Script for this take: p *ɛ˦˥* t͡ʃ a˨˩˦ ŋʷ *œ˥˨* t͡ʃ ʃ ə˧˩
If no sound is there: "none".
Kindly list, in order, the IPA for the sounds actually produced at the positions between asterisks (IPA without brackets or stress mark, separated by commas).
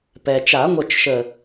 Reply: ɛ˩, œ˥˨